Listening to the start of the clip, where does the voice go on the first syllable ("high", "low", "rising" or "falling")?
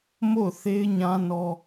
falling